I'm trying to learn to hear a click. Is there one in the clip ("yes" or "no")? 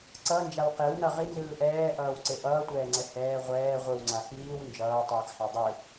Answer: yes